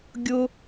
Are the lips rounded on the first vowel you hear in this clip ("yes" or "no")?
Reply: yes